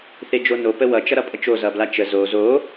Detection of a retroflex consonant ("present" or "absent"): absent